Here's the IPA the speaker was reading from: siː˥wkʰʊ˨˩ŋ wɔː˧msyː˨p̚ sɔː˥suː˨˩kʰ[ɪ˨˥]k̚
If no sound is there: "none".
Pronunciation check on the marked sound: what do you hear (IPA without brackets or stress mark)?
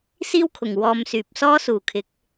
ɪ˨˥